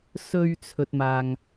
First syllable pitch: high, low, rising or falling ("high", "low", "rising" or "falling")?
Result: low